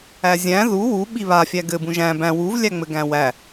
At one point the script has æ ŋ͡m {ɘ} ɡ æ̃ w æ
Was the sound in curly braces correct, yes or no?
yes